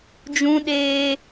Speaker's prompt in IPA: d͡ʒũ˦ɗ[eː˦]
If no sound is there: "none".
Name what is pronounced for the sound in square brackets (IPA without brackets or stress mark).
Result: eː˦